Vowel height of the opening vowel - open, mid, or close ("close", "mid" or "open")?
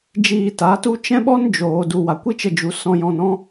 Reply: close